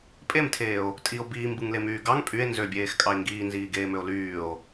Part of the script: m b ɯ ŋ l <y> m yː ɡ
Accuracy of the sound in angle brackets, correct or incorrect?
incorrect